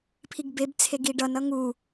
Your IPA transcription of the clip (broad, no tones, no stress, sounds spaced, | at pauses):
pʰ i ɡ b e b t͡sʰ e ɡ i ɖ ʌ n ʌ ŋ u